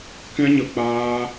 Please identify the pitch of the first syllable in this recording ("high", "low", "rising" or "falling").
high